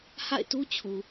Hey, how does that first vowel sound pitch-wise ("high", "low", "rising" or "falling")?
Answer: falling